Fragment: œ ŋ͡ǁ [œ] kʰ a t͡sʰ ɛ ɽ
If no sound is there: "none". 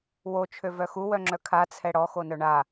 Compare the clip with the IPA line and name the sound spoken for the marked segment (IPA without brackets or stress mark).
œ